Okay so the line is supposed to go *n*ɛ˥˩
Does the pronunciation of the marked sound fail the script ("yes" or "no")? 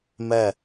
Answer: yes